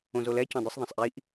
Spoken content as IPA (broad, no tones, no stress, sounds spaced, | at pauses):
õ z o l ɛ c ɔ̃ dˤ u sˤ ðˤ ɐ̃ sˤ ʔ i ʔ